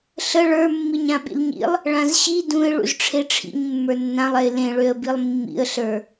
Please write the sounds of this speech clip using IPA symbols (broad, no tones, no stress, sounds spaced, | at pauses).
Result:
ɬ ə ɭ ə˞ mː i ɲ ã ɓ ḭ l ɲ ḭ lˠ | ɭ ã z ɕ i d ũ ɪ̯ ɭ ṵ z ʈ͡ʂʰ e ʈ͡ʂʰ ḭ ɲ mː ə˞ nː ã lˠ ɛ ɪ̯ l ẽ ɭ ø ə̯ b i lˠ mː ḭ ə̯ ɬ ə˞